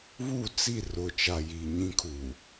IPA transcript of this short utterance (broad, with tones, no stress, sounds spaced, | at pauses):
β u˦˨ t͡s i˦˨ r ʊ˨ t͡ʃ a˨ j i˨ ɲ ĩ˦ kʰ u˨